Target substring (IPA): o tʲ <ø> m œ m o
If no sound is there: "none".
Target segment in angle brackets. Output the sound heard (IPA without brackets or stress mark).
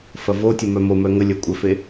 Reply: ə